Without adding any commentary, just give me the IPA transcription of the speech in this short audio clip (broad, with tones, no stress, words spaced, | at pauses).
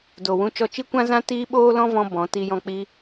do˨ wũ˧t͡ʃɔ˧t͡ʃi˦kʷã˦ zã˦tiː˦ ɓoː˦lɔ̃˦vɔ̃˧ bɔ̃˨˦ti˧jɔ̃˧ k͡pi˦